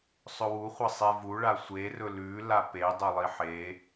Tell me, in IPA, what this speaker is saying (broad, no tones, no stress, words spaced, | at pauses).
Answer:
sˤɵwu χʷɐsˤevuɭa sʷerɵ lʉla pe dˤɵlˠiħe